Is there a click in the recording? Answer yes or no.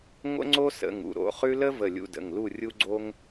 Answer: yes